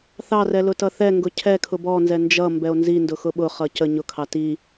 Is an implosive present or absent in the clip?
present